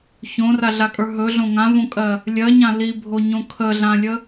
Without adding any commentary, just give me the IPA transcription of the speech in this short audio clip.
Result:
ç õ r a ɮ a kʼ ə˞ ɦ ɵ ɮ õ ŋ ã v õ kʼ ɜ | lʲ ɜ ɲ ã l i bʱ o ɲ õ kʰ ə ɮ ã lʲ ə

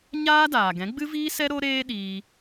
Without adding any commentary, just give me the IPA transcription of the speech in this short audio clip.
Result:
ɲ aː˦ d aː˨ ɡ ɛ̃˨˦ ɡ͡b ɨ˦ v iː˦ s ɛ˦ ɾ o˦ ɾ eː˦ ɗ iː˧

